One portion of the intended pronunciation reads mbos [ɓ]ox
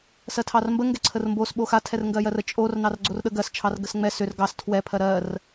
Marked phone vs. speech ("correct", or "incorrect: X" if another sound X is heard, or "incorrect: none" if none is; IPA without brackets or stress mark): correct